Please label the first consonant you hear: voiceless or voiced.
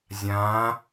voiced